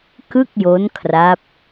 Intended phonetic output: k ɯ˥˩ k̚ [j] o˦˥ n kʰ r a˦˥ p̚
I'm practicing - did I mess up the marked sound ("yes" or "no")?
no